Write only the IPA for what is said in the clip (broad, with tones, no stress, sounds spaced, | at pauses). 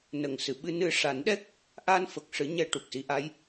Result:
n ə˨˩ ŋ s ɨ˨˩˨ ɓ ɨ˧ n ɨ˧ ʂ a˨˩˦ n ɗ ɛ˦˥ k̚ | ʔ a˧ n f ə˨˩ k̚ ʂ ɨ˨˩˦ ɲ ɛ˧ ʈ u˨˩ k̚ s i˧˥ ʔ a˧˥ j